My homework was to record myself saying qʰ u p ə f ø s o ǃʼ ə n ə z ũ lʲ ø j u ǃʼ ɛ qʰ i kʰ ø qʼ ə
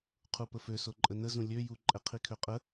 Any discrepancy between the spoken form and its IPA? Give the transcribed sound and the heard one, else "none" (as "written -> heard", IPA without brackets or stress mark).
none